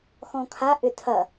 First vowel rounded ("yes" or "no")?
yes